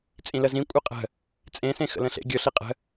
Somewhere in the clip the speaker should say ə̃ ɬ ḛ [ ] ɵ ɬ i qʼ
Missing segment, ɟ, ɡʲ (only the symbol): ɡʲ